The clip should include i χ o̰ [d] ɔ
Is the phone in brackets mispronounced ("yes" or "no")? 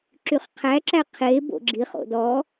no